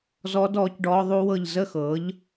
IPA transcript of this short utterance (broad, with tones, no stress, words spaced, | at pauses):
zɔː˦˥dɔː˨˥cɖɔː˦˥ ðˤu˦˥wɤ˥˨ʎ zə˥˨xɤ˨˥ʎ